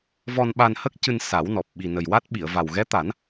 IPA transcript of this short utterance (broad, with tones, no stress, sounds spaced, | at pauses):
v ɔ˧ n ɓ a˧ n h ə˦˥ k̚ c ɨ˧ n s a˨˩˦ w n ɔ˨˩ p̚ ɓ i˨˩ n ə˨˩ j w a˦˥ t̚ ɓ i˨˩˨ ə̯ v a˨˩ w ɣ ɛ˧˥ t̪ a˨˩˦ n